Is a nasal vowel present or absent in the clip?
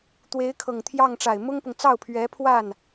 absent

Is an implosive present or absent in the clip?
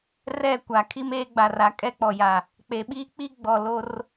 present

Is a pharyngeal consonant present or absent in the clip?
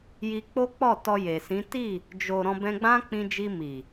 absent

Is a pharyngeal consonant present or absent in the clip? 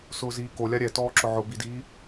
present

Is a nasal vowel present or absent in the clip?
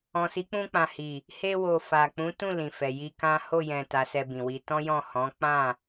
present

